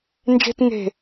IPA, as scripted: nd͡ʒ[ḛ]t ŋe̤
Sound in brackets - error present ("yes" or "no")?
yes